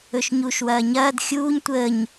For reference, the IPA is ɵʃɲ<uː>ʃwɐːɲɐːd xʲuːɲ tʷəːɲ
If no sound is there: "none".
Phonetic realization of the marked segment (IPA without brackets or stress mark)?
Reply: uː